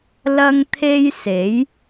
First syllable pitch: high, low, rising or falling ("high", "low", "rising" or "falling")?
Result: high